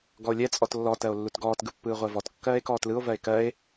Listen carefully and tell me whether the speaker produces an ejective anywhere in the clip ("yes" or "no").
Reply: yes